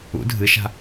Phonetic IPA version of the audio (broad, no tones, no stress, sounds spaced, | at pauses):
ṵ dʱ ɨ ʃ a̤